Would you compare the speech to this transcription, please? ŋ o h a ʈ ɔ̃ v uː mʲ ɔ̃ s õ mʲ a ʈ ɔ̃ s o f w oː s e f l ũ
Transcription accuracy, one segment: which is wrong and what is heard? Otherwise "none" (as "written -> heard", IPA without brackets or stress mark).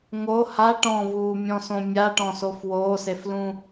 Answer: none